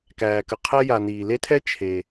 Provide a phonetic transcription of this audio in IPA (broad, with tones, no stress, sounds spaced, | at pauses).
k æː˩ k ə˨ qʰ ɛ˥ j a˨ n iː˩ l e˥ tʰ ɛ˥ t͡ʃʰ e˩